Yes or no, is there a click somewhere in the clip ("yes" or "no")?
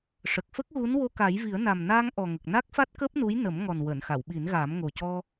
no